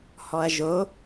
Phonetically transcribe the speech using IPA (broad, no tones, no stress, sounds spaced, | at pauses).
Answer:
h ɔ ɐ̯ ʒ o